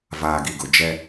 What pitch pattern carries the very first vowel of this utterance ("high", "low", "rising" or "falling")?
low